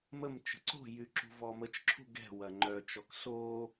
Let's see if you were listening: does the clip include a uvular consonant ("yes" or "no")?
no